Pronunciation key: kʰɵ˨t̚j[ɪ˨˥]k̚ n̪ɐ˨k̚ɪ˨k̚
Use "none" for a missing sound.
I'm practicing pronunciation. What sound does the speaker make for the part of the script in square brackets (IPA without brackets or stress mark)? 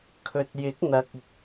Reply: ɪ˨˥